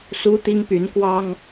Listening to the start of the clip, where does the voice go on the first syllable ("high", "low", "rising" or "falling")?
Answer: high